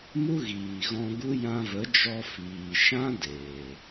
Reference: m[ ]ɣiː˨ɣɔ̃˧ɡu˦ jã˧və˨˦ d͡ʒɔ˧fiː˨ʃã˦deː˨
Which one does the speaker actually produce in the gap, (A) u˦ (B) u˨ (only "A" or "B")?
A